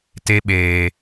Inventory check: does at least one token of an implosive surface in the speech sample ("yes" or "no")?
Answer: yes